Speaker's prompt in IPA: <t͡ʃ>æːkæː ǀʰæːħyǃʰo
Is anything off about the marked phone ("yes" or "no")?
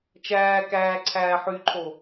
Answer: no